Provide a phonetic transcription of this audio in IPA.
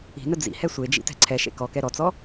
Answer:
i̤ n ə d͡z ḭ h ɛ sʷ e d͡ʒ ḭ t ɛ̤ ǀʰ ɛ ʃ ḛ k ɔ k ɛ ɾ ɔ t͡s ɔ

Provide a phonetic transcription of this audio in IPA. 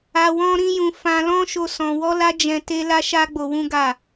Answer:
a˧ w ɔ̃˦ ɾ ĩ˦ j ũ˧ f ã˧ l ɔ̃˦ ʃ o˦ s ɔ̃˧ w ɔ˦ l a˦ d͡ʒ ɛ̃˧ t e˦ l a˦ ʃ a˦ ɡ͡b o˧ w ũ˦ ɡ a˦˨

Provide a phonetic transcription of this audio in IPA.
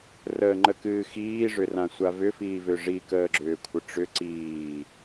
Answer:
r əː ŋ͡ǃ ə k ɨː x iː ʐ ʏ r ã sʷ a v ʏ f iː v ʏ ʐ i k əː ɡ͡ǁ ʏː kʷʰ ə ʈ͡ʂ ʏ ǀ iː

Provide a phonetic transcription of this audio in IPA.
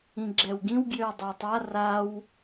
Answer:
ĩ ɡ͡ǁ ɛ w ɡ ĩ w ɡ j ø w dˤ ɑ tˤ a r a w

